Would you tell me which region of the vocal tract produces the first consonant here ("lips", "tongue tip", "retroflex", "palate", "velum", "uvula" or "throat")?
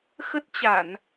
velum